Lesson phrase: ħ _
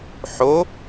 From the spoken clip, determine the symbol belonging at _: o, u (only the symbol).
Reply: o